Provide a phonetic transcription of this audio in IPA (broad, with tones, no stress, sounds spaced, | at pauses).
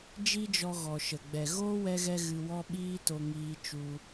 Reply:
d͡ʒ i˦ d͡ʒ ɔ˧ ɣ ɔ˨ ʃ ə˨ ɡ͡b ɛ˨ ɣ oː˦ w ɛ˧ ɣ ɛ˧ ɣ ɨ˧ w ɔ˦ ɓ iː˦ t o˧ ŋ iː˦ t͡ʃ u˧